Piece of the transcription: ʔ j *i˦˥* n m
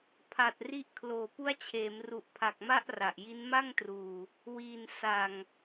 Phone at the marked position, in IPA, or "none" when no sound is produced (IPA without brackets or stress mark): i˦˥